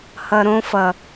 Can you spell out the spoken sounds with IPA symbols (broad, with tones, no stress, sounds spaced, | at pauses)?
h ʌ˨ ɾ õ˧ f ʌ˨